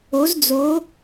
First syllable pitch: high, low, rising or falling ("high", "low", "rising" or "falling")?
rising